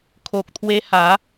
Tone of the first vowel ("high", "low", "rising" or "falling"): low